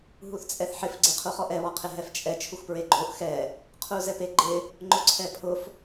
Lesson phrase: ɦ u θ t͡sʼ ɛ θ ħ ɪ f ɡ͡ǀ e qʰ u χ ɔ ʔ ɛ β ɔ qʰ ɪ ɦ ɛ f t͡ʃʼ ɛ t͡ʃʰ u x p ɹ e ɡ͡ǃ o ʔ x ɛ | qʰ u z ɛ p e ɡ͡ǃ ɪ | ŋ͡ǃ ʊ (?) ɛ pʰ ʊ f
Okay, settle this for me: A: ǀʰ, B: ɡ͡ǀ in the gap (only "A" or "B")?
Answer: A